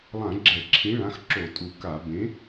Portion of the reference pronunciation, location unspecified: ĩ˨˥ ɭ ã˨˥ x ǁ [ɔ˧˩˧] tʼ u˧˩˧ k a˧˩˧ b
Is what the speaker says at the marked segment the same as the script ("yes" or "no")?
no